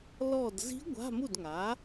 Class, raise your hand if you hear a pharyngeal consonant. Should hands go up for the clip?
no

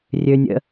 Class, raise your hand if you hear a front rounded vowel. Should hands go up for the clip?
yes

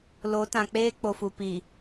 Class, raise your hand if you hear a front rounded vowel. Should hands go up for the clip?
no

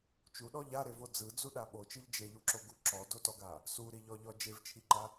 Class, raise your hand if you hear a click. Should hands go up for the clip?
yes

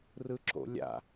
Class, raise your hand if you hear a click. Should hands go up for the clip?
yes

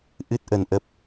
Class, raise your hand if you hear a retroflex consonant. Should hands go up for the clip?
no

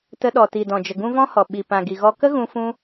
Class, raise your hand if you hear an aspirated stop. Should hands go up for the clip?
no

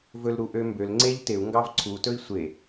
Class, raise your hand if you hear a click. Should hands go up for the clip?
yes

